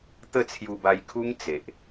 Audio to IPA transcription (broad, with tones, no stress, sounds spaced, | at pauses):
t̪ ə˥˧ t͡sʰ j u˧ b a˧ j kʰ u˦ ŋ t͡s e˨ ʔ